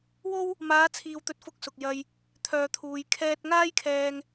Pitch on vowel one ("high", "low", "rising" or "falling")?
high